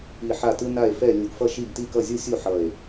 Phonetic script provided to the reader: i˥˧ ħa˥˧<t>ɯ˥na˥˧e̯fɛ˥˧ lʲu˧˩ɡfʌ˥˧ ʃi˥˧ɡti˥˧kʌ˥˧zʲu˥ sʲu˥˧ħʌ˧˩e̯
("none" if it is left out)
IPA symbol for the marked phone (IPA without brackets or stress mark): t